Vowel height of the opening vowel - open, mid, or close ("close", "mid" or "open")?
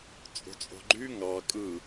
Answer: mid